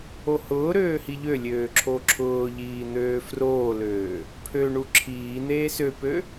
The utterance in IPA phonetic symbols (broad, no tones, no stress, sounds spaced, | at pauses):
o h ʊː ɾ øː h i ʎ ø lʲ øː ǁʰ o ǁʰ ʊː ʎ iː n̪ øː f r oː l øː | pʰ ø ɳ u ǁʰ iː n̪ eː s ø p ø